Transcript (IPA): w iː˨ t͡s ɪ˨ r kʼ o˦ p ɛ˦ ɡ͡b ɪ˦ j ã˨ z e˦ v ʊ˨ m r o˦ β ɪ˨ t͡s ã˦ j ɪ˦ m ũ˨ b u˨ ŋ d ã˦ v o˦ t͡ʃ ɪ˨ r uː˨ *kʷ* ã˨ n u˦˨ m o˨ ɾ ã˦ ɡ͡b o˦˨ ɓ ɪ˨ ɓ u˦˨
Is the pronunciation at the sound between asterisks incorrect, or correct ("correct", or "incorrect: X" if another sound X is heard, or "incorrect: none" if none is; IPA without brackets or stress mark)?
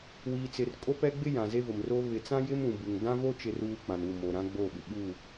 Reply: incorrect: k͡p